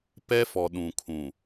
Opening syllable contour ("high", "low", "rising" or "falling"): high